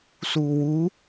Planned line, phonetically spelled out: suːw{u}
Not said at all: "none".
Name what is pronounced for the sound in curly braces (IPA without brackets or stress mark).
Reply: u